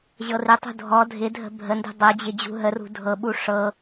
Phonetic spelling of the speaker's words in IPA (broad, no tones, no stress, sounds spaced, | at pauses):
ʑ ɤ r ɪ tˤ ṳ dʱ ɔ dʱ ɪ dʱ ə̤ bʱ ə n d ṳ dˤ ɤ d͡ʑ ɪ d͡ʑ ṳ ɦ ə r ṳ dʱ ɤ ɓ u ʂ ɤ